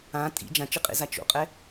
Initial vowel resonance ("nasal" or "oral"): nasal